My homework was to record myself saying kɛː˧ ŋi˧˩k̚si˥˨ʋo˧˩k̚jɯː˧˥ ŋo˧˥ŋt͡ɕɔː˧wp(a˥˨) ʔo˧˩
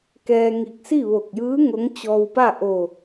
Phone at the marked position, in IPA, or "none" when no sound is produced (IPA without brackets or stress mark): a˥˨